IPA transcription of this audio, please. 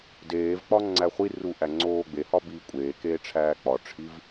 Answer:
deːvk͡pɒ ŋ͡ǀæχʷiru ʔæŋ͡ǀoːɡ͡behɒ biːkʷʼeːkeː ʈ͡ʂʰæːk͡pɒʈ͡ʂʰiv

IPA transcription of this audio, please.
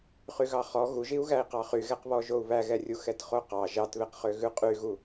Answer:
χyɣɑχɔ ɣuʒiu̯ɣæi̯qɑ χyɣɛqβɔ ʒou̯βæɣɛrʲu xɛtχoqɑ ʒɑtβeqχø ɣʉqʼyɣu

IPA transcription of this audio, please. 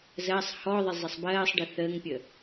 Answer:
zɜsˤ hɔðˤɪ zˤəsˤbɜːsˤɖɪ θəːŋpʲə

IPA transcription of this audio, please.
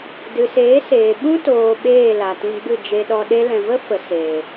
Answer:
dɨ˨seː˨˦seː˨ ɓũ˦toː˨ ɓeː˦˨la˨tĩ˧ɡ͡bɨ˦˨ d͡ʒe˧ɗɔ˧ ɗe˧lɛ̃˨və˦ fə˨ seː˨

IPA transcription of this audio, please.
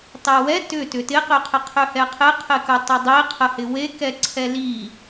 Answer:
tˤewɛ tʏ tʏtɪqʏqʰɪ qʰʏhɛqʰɪ qʰɪkətˤedˤi qʰəhɪwekɛ ǀʰɛli

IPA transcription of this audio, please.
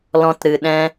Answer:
lɔ̃˧tɾɨ˨ɗɛ̃˧

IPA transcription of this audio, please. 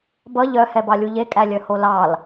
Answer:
bʌ ʎœhɛbɑlʲu ʎekʼælʲœ holɑl

